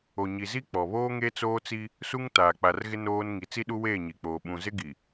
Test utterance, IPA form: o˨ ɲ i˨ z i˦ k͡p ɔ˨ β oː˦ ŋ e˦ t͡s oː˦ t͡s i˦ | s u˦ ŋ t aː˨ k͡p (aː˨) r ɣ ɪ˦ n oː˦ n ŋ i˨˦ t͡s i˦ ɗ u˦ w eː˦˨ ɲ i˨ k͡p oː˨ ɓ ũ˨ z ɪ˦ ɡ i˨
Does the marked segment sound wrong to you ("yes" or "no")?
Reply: yes